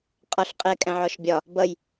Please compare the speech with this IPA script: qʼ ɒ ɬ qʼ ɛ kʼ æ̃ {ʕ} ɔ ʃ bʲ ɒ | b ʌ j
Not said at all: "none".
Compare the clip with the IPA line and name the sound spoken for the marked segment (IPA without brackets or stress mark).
ʕ